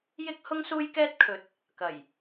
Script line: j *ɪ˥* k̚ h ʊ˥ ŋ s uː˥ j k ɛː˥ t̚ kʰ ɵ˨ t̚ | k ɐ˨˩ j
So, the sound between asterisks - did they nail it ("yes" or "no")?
yes